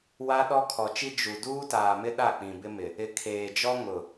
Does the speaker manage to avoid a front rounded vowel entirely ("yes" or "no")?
yes